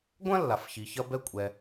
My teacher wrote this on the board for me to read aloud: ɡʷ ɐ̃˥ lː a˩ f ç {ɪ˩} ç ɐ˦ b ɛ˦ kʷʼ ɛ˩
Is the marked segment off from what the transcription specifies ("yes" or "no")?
yes